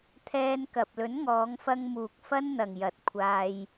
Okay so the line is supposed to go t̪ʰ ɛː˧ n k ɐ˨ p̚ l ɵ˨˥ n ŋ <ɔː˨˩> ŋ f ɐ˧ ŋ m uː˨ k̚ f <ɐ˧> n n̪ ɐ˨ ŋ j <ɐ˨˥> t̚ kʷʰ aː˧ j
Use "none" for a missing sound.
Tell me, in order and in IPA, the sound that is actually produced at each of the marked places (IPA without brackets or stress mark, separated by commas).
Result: ɔː˨˧, ɐ˥, ɐ˨˥